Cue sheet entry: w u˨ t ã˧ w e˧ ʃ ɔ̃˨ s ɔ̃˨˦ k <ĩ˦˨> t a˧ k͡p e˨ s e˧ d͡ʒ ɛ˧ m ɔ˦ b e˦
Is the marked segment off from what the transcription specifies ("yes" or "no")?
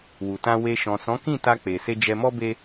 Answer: no